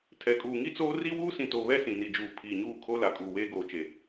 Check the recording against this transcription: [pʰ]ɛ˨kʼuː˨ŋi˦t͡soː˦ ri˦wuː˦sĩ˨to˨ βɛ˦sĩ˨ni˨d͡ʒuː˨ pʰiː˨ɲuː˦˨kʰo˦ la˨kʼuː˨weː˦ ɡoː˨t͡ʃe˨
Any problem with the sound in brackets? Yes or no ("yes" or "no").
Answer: yes